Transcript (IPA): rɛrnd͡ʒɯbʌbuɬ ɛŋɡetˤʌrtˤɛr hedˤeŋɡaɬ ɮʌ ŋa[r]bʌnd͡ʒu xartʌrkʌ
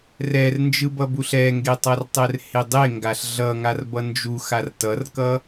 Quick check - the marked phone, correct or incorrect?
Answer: correct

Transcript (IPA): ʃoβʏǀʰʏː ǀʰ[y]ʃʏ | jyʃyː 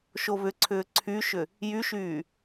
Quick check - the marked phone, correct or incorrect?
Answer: correct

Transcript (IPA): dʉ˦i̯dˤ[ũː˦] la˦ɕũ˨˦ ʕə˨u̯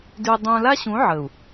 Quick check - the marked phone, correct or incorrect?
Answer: correct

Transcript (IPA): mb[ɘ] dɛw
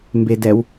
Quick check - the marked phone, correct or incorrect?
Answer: incorrect: e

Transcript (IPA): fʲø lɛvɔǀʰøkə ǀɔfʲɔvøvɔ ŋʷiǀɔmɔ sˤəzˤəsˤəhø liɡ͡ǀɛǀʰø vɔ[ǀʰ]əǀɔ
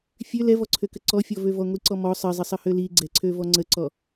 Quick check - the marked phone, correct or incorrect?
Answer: incorrect: ŋ͡ǀ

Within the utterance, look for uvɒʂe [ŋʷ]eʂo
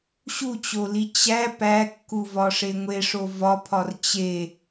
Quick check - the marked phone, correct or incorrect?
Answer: correct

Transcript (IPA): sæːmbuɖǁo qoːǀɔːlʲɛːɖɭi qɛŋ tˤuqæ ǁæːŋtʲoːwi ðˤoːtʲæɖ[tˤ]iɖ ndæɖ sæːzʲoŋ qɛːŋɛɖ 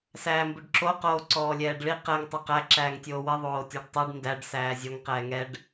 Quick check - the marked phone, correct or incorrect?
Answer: correct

